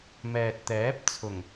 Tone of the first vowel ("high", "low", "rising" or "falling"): low